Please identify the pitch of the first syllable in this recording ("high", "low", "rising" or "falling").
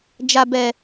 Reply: low